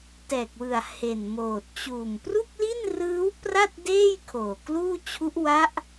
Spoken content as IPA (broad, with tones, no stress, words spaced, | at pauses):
tɛː˨˩k̚wɯ˨˩a̯ he˨˩nmoː˨˩t̚ t͡ɕuː˨˩m pru˥˩k̚li˥˩nrɯː˦˥w pra˥˩t̚deː˥˩j kʰoː˨˩kluː˥˩t͡ɕʰu˦˥ʔ wa˦˥ʔ